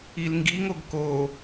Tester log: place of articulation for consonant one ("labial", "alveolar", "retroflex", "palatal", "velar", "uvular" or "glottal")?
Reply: alveolar